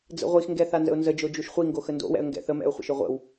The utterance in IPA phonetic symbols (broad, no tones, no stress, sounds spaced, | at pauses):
d͡z ə̰ ʁʷ i x ŋ ɡ ɛ θ a n z ə̰ ʊ̯ n z ə d͡ʒ o d͡ʒ u ʃ χʷ i ŋ ɡ o x ə n d o̰ w ɛ̰ ə̯ ŋ ɡ ɛ̰ θ ə m ɛ̰ ʊ̯ χʷ ə̰ ʃ ʏ ʁʷ ə̰ w